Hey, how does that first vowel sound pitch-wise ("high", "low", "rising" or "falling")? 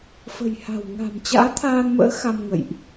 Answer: low